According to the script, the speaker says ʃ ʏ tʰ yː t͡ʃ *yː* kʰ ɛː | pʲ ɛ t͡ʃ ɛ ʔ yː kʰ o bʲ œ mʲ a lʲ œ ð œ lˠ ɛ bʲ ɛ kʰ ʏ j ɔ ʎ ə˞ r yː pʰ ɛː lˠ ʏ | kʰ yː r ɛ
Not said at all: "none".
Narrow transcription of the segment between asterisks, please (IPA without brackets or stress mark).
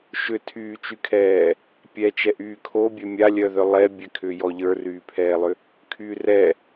y